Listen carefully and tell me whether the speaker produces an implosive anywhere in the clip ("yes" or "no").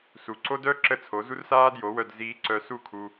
no